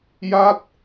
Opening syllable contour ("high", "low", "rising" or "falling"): falling